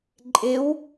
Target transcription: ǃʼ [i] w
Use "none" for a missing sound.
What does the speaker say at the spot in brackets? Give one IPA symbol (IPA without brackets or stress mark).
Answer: ɪ